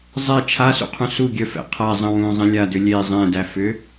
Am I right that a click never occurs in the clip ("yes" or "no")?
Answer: yes